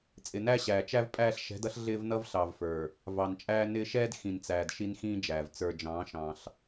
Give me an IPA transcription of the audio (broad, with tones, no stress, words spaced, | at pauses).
t͡sʼɪ˨næ˦ɕæː˨ t͡ʃæ˦vpʼæː˦ɬ ʃɛ̤˨˦dʌ˦ɬ ɮɪː˦vnʌ˦vɬɑ˨vfə˞˨ | vɑ˨nt͡ʃʼæː˦nɪː˦ ʃɛː˦d xĩ˨nt͡sæː˨d ʃi˦nxĩː˦d͡ʒæː˨v t͡sə˞˨d͡ʒɑ̃ː˨˦ ʃɑ̃˦ɬ